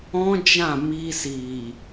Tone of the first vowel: high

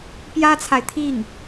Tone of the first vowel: high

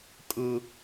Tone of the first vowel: high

